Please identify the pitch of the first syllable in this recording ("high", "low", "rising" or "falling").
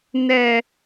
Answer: low